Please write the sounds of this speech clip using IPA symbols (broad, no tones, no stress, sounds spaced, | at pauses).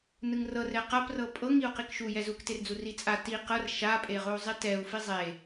n ɯ ŋ r ɤ r ɛ q a p r ɤ pʼ ɤ ŋ i u̯ q i k ʃ u j ɛ z u k t e r d͡z u r i t͡sʼ a t i q ɤ r ʃ a pʼ e ʁ o u̯ zˤ i t ɛ u̯ f i zˤ e